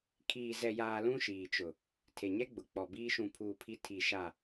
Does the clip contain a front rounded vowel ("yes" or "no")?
no